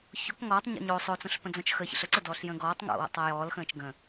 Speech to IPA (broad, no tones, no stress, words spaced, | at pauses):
çok ŋɔːtˤɲɔ̰ ɲo sˤot͡sõɬpə̃d͡zɔ̃t͡ʃ xə çə̰ɬəǀədɔːɬ jə̃ːɡɔːtˤ ŋo̰wə̰tˤ ɜjɔːl xə̃ːt͡ʃɡə̃